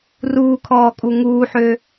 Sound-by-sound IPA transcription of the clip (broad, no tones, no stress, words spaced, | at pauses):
ruːkʰɔːkʼu ŋuːħø